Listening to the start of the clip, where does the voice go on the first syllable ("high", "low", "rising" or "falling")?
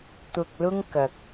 low